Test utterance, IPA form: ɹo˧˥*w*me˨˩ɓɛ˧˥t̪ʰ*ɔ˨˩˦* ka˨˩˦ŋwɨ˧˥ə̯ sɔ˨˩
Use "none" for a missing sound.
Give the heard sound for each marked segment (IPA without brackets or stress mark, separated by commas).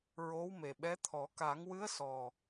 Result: w, ɔ˨˩˦